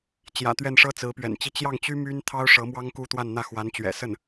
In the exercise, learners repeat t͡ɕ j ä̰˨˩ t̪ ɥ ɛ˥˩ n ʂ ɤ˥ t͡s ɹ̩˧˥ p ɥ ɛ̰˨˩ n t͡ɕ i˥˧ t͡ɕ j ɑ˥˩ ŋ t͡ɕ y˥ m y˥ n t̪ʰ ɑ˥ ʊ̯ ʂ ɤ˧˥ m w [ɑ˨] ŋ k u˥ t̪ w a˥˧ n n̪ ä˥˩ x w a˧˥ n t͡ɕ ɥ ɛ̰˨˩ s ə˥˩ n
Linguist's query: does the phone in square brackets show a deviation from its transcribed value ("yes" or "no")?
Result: yes